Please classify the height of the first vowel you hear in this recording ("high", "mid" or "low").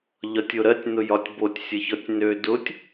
low